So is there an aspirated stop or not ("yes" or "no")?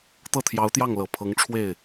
yes